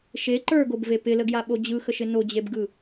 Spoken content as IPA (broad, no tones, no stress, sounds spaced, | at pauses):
ʃ e ǃ ə˞ ɡ o b v e p ɪ l ə ɡ j a ɓ o d͡ʑ ɯ x ə ʃ ɪ n o d͡ʑ e b ɡ ɯ